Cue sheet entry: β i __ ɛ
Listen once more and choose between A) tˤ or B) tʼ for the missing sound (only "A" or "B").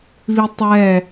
A